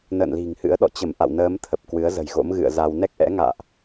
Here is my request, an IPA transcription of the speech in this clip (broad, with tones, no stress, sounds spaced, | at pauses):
n ə̰ː˧˨ n l i̤˨˩ ŋ h ɨ̰˧˥ ə̯ ɗ ɔ̰˧˨ t͡ɕ ə˧˩ m ʔ a̰˧˨ w n əː˨˦ m t̪ʰ ə˨˩ p̚ k w ɨ˨˦ ə̯ z ə̤˨˩ j ɣ o̰˧˥ m ɣ ɨ̰˧˨ ə̯ z a˧ w n ɛ˦˥ k̚ ʔ ɛ̰˧˥ ŋ a̰ː˧˨ ʔ